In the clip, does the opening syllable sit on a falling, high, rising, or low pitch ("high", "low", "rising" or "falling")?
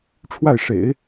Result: falling